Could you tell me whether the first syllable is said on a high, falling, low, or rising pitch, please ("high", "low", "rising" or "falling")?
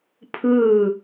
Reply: falling